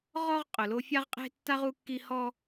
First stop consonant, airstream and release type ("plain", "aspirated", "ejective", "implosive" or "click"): ejective